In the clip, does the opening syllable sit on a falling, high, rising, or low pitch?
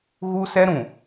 high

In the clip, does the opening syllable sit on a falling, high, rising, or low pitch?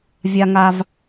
high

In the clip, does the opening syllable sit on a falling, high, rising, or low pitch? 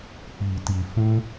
low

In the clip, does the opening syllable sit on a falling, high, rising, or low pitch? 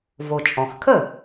low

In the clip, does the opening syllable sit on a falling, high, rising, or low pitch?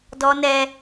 high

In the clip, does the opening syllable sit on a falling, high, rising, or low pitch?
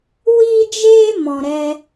high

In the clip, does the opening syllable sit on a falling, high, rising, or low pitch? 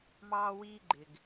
high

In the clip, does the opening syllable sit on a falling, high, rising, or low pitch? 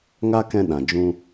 high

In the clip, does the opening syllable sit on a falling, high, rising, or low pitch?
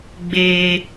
low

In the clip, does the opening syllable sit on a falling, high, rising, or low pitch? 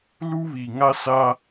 high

